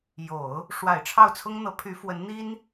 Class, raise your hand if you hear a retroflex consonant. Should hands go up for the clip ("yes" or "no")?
yes